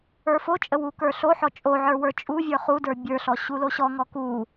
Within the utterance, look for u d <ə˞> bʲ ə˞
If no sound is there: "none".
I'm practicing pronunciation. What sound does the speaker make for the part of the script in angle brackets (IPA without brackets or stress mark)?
ə˞